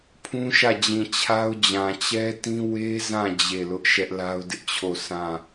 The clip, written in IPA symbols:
pʰũ˦ʃä˦˨d͡ʑĩ˨ t͡ɕʰa˦ʊ̯d͡ʑã˨ t͡ɕɛ˦tĩ˦ we˦zã˦˨ d͡ʑe˦˨lʊ˦ʔ ʃɛ˦ʔla˦ʊ̯dɪ˦ʔt͡ɕʰo˦˨ sʰã˦˨

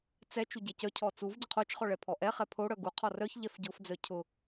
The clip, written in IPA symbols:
t͡sɛ t͡ʃuɟɛcœcʰɔ t͡suv ɟʊqʰot͡ʃχɔ ɭɛpʰɔʔɛχɛ pʰo ɽœɡuqʰɔ rœçʎɛf ɟʊfd͡zœ cʰʊ

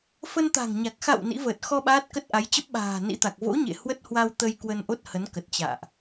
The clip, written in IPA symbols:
fə˧nt̪a̤˨˩ŋɲa˨˩k̚ xa̰˧˨w nḭ˧˥vəː˨˩t̚ xɔ˧ ɓaː˦˥t̚kə˦˥t̚ʔa˨˦j t͡ɕə˦˥p̚ɓa̤ː˨˩nḭ˧˥t̪a˨˩k̚ vo̰˧˥ɲḛ˧˨ hwə˦˥t̚hwa˧wt̪ə˧j kwə˧nʔo˦˥t̚hə˨˦nkə˨˩t̚ t͡ɕa̰ː˧˨ʔ

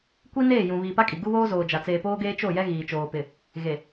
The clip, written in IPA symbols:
kʷi˦ neː˦˨jũ˨ βiː˨pa˦kʼi˨ ɡu˦βoː˦zoː˨d͡ʒa˨ t͡seː˨poː˦ɡeː˦ t͡ʃo˦˨jɛ˦ ɣiː˨t͡ʃoː˨pɪ˨ | ɣe˨

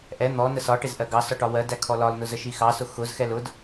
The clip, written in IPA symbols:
ʔɛ n̪ɔ nəsɒʈɪz ʔɜɡɑsɔ ʈɒwɜdæ kʰɔlɒlnʊ zəʃixɑsʊ xʊzxɛl ʊd

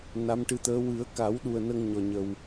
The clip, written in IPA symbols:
na˧˥mʈɨ˧˥t̪əː˧˥ wɨ˨˩˦ə̯ka˨˩˦wɗu˨˩ə̯ nə˧ŋɲɔ˨˩ɲə˨˩w

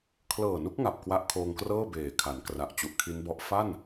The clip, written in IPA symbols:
kʰlɤː˨˩nu˦˥k̚ ŋa˨˩p̚kwa˦˥ʔ kʰoː˧ŋkrɤː˥˩ beː˨˩kʰa˩˦nkra˨˩ʔ t͡ɕu˨˩ʔkʰi˦˥nbɔ˦˥ʔ fa˥˩n

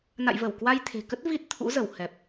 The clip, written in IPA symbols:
na̰˧˨jvə˧˩w kwa˧j t̪ʰe̤˨˩kə˦˥t̚ vi˦˥t̚ t̪ʰṵ˧˥zə˧˩whɛ˨˩p̚

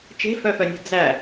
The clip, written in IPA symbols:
t͡ʃe̤fœfœnʲɛ̤ d͡zæ

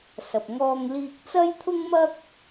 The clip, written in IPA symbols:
sɐ˨p̚ŋɔː˧ŋliː˧k̚ t͡sɐ˥jt̪ʰʊ˥ŋmɐ˥k̚

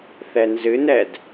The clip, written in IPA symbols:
θɛnzɨnɛd

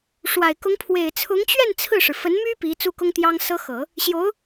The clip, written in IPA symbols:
ʂwa˨˩ɪ̯kʊ˧˥ŋ pʰwe˨˩ɪ̯t͡sʰʊ˧˥ŋt͡ɕɥɛ˥˧n t͡sʰɹ̩˥˩ʂɻ̩˩ fə˧˥nmy˥ pi˧˥t͡su˥kʊ˥ŋ t̪jɑ˥ŋsɤ˥xɤ˨˩˦ | ɕjo˧˥ʊ̯

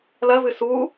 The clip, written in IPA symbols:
lɐvɨ su

